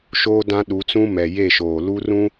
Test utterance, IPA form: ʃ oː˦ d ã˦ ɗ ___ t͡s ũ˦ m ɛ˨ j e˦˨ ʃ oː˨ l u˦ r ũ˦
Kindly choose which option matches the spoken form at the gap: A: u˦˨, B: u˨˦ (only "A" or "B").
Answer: B